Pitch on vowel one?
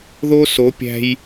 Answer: high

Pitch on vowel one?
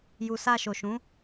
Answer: low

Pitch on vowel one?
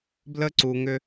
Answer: high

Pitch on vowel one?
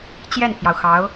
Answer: falling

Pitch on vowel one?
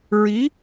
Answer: rising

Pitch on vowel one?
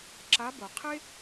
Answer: rising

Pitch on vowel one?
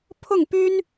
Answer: falling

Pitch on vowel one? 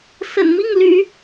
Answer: low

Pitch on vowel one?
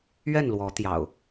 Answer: falling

